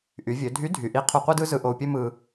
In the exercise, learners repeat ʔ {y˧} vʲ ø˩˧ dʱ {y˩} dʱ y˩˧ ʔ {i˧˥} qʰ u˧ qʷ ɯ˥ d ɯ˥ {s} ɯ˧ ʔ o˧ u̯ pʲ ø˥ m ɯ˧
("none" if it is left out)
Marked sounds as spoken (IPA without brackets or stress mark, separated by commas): y˩˧, y˧˥, i˧˥, z